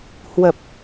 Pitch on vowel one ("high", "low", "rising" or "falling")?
low